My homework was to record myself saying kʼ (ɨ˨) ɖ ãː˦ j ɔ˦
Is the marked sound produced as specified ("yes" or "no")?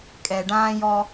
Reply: no